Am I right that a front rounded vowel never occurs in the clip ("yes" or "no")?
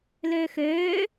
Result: no